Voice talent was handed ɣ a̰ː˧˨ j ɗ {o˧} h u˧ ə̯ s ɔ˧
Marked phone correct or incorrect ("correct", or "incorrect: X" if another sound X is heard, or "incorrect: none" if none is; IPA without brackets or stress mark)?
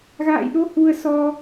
correct